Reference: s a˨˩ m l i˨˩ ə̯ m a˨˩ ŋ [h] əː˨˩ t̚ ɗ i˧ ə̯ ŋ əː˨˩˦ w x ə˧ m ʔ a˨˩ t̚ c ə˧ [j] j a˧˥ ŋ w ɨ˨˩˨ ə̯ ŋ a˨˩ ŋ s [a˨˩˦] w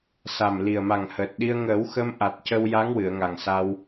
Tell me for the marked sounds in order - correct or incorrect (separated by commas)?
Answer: correct, incorrect, incorrect